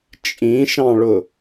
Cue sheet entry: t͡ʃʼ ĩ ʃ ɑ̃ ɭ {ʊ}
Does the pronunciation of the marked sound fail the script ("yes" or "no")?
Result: no